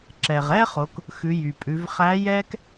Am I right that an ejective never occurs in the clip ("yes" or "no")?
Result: no